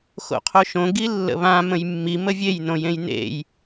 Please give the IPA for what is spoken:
x o̰ qʰ o ʃ õ ɡ i lː ə̰ β ã m ə̃ j mː i m ə vʲ e j n õ j ẽ j n ḛ j

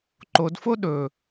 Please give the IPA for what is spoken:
ǃ o d f o ɗ ɵ

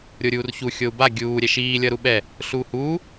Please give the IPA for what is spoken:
ɾʲ o ɾʲ uː r ç u xʲ o u̯ b a ɡʲ uː ɾʲ ɛ ʃ iː lʲ ʌ ɾ u ɓ ɛ | ɬ uː h uː

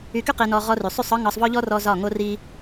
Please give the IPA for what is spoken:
y˧ k y˦ q i˧ n ɔ˧ ʁ ɔ˧ r y˨ sˤ y˦˨ sˤ ɒ˦ ŋ ɒ˧ sˤ v ɔ˦ ʎ ɔ˦ r ɔ˧ z ɒ˦˨ ŋ o˦ r i˦

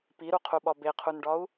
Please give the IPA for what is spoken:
p i ɾ u qʰ u ɓ ɒ b e qʰ u n ɖ ɒ u̯

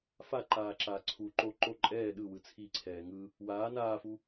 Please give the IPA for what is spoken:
f a ǃ aː ǁ aː ǀʰ u ǃ o ǃ o ǃʼ ɛː ɗ ɯ w ɯ t͡sʰ i ǀʰ ɛː ŋ ɯ | w aː n aː f u

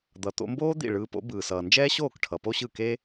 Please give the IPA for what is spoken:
d̪ ʌ˩ t̪ o̰˧ m b oː˥ d̪ ḭ˥˩ ɭ ɯː˧ p o̰˩˥ b ɯː˩ s ʌː˩ n d͡ʒ ɛː˥ ɕ oː˥˩ k ʈʰ ʌ˩ p o˥ ɕ ɯ˥˩ k e˥

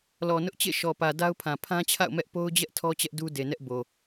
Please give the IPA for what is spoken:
l ɔ˨ n ʊ˦ ʔ t͡ɕ ḛ˦˨ ʃ ɔ˨ p ä˨ d a˦ ʊ̯ pʰ ã˨ pʰ ã˦ t͡ɕʰ a̰˦˨ ʊ̯ m ɛ˦ ʔ p o˦ ʊ̯ d͡ʑ ɛ˦ ʔ tʰ ɔ˦ t͡ɕ ɛ˦ ʔ d u˦ d e˨ n ɛ˦ ʔ b o˨

